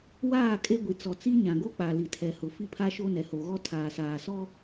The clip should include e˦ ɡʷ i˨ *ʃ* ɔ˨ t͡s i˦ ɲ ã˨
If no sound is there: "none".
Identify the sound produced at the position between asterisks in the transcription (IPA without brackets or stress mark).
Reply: t͡s